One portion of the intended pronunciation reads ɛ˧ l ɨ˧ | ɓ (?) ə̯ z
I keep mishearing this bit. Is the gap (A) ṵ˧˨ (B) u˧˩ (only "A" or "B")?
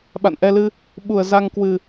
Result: B